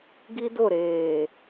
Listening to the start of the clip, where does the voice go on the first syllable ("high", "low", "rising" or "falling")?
high